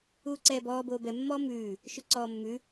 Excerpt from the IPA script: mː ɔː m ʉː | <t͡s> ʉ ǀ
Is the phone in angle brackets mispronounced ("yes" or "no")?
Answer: yes